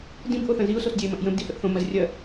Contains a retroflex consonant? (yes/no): no